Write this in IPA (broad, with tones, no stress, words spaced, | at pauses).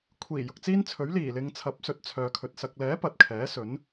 kʷʰiː˨˩ jʊ˨k̚t͡siː˥nt͡sʰɵ˨˥ɥ liː˨˩lɪ˨ŋ t͡sʰɐ˨˥p̚sɵ˨˥t̚t͡sʰœː˨kʰɵ˨t̚ sɐ˨k̚lɛː˨˥ pɐ˨t̚kʰɛː˨˥ sɵ˨˥n